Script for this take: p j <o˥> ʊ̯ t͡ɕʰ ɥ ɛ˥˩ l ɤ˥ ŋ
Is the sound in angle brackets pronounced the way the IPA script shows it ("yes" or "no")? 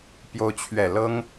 yes